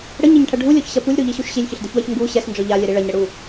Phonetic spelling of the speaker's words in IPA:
ɽ ə ɲ ɛ ɲ ʈʰ ɐ ɖʱ u lʲ ɔ ç ɕ ɐ p u lʲ ɾ u ʎ i ɕ u ʃ ɕ i lʲ ç ə ɬ d ə ç w ɐ ç ŋ ɡ u ɕ ɛ s n d͡ʒ ɔ ʎ a lʲ ɛ ɾ i ɭ ɐ ɲ ɾ ə ɽ u

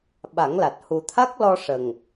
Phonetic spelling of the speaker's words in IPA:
ɓ a˨˩˦ ŋ l a˨˩ t̚ h u˨˩ t̪ʰ a˦˥ k̚ l ɔ˧ ʂ ə˨˩ ŋ

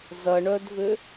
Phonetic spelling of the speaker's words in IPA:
z ɐ ɳ œ d v ʏ

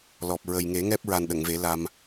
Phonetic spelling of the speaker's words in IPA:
l ɔ˨˩ p̚ ɹ ə˨˩ j ŋ e˨˩˦ ŋ ɛ˦˥ p̚ ɹ a˨˩ n ɗ ə˨˩˨ ŋ v e˨˩˦ l a˧ m

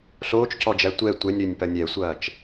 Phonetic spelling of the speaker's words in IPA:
ɬ oː t͡ʃ c ɔ d͡ʒ æ tʷ ɛ tʷ ɛ nʲ ɾ ø nʲ p ɐ nʲ ɛ sʷ ɐː t͡ʃ

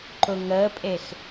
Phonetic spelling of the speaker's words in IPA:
ǃ ʊ ŋ əː pʼ e x

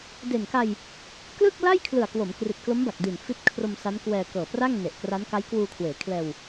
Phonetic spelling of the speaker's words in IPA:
d e˨˩ n k a˧ j | k l ɯ˥˩ k̚ l a˥˩ j kʰ l ɯ˨˩ a̯ k w o˩˦ m k r i˨˩ t̚ k l o˦˥ m b a˨˩ k̚ d i˨˩ n f i˦˥ t̚ kʰ r o˧ m s a˦˥ n k w ɛː˧ k ɤː˨˩ p r a˥˩ ŋ n e˨˩ ʔ k r a˦˥ n k a˦˥ j k w uː˧ kʰ w eː˩˦ kʰ l ɛː˧ w

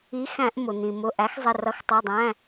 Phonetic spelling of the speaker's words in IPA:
i˨˦ x æ̃˧˩˧ ʔ m ʊ˩ n̪ ĩ˩ m ʊ˩˧˩ ʔ æ˨˦ x zˤ ɪ˩˧˩ r ʌ˨˦ x tˤ ɜ˩˧˩ dˤ æ̃˩˧˩

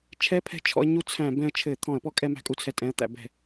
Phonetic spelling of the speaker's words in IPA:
t͡ʃʰ ɛ˦˥ pʰ ɛ̤˧ t͡ʃʰ ɔ̰˧ ə̯ ɲ u˦˥ t͡sʰ æ̃˧˩˧ b ɛ̃˧ ə̯ t͡ʃʰ ɘ˧˩˧ t̪ʰ ɔ̃˧˩˧ ə̯ p ɔ˦˥ kʼ ɛ˧ m æ̤˧ kʼ u˧ t͡sʰ ɛ˧ tʼ ɛ̃˩˧˩ ə̯ t̪ æ̰˧˩˧ b ɛ̤˧˩˧

